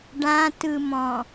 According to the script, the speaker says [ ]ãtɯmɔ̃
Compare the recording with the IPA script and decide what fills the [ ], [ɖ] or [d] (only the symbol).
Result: ɖ